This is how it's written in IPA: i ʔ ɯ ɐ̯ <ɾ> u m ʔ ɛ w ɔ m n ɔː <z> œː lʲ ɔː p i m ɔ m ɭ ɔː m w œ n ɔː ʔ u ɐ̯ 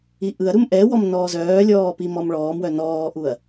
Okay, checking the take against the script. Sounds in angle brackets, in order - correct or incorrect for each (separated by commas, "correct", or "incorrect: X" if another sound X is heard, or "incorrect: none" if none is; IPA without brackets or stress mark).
correct, correct